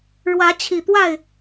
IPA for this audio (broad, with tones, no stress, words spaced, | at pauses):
ɻwä˨˦t͡ɕʰi˨˩t̪wa˥˨ɪ̯